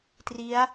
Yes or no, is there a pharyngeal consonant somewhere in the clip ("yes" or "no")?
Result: no